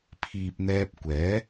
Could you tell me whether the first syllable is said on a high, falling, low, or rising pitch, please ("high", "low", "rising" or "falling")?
low